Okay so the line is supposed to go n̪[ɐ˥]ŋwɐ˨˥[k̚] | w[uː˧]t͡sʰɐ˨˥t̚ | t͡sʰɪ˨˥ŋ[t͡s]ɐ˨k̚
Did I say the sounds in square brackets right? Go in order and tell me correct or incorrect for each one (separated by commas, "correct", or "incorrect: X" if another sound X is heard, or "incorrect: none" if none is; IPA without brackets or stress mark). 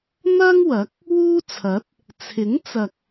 correct, correct, incorrect: uː˥, correct